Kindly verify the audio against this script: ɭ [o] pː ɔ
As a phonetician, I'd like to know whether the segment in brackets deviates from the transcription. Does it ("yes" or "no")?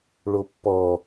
no